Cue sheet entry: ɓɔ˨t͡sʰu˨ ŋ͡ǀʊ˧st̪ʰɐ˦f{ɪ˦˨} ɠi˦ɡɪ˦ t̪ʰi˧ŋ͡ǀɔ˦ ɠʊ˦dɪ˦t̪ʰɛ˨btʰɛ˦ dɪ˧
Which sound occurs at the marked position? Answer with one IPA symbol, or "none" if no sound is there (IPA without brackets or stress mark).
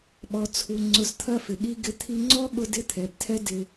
ɪ˨